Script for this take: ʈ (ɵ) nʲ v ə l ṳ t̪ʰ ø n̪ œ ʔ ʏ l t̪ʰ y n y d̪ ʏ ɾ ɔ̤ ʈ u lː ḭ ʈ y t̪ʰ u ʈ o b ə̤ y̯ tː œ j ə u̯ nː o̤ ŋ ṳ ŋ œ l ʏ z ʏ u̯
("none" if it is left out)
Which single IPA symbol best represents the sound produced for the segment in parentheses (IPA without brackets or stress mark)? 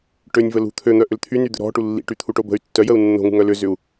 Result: ø